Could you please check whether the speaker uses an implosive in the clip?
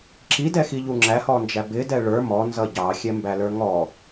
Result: no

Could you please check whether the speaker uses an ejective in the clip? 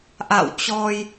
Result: no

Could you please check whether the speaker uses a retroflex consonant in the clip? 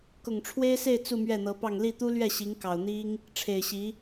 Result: yes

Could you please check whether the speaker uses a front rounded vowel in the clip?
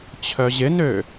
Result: yes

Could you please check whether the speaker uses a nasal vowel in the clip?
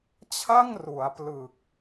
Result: no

